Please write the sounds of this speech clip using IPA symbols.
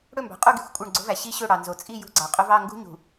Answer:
ɽɵ˦˨mbɑ̤˨ qʼu˦˨ɡi̤˦˨xʷ kʷʼœ˦˨ɳɡ͡ǀo̤˦væ˨ ɕi˦ɕɵ˦˨ ɽɑ˨ nzo˨ t͡sʼi˦˨ jṳ˦ɡ͡ǀɑ˨qʼɵ˦v ɑ˦˨ŋɡṳ˦ɲṳ˨

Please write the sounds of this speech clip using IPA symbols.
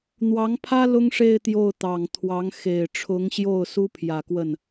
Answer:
n̪wɑ˧˥ŋpʰä˥ lʊ˥ŋʂe˥˧ɪ̯ t̪jo˥˩ʊ̯t̪ɑ˨˩ŋt̪ʰwɑ˧˥ŋ xe˨˩ɪ̯ʈ͡ʂʰʊ˧˥ŋɕjo˥˩ʊ̯ su˥pʰjä˨˩kwə˥˩n

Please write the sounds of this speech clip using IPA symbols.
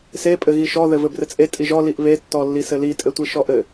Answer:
se pʼɘɣiʃɔ ðɘvɘbrɘt͡sʼe tʼiʒɔ liʔβe tːɔlːisɘli tʼɘtʷiʃɔʔɘ

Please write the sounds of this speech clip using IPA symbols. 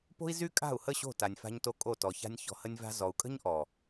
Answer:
po̤˦i̯zy˦kʼa̤˦˨u̯hə˦˨ ɕo̤˦˨ta˨nʲfa̤˧ɲto˧ kʼo˦˨tɔ˨ça̤˦nʲ çɔ̤˧hə˦nʲva̤˦ zɔ˨u̯kʼə̤˦ɲʔɔ˨

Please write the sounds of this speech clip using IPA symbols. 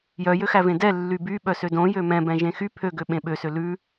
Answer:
jœjøxævẽ dɛlːy byɓœsø dõjø mɛ̃bɛ̃ʒẽ xy pʰøɡøɓẽ ɓøsø lʉ

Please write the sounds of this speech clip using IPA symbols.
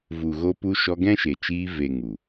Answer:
vu˨ɣo˧pu˧ ʃɔ˧ɡɛ̃˦ʃe˨t͡ʃiː˧ ve˨ ŋu˨

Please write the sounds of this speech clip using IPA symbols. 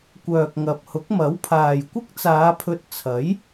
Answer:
kʷœː˨k̚ŋɐ˨p̚ hʊ˨˥k̚mɐ˨˥wpʰaː˨j kʷɪ˥k̚t͡saː˨˧pʰɵ˧t̚ t͡sʰɐ˨˥j

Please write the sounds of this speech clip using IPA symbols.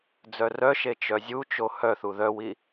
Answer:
d͡zœrœʃe t͡ʃœzʲut͡ʃo hœθu ðœwi

